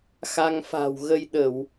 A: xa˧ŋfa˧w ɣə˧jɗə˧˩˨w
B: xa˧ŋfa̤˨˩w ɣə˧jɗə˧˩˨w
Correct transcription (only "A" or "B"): B